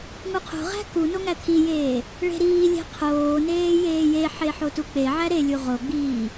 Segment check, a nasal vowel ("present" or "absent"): absent